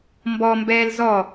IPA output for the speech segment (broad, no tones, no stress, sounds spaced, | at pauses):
m b ɔ m b ɛː l z ɔ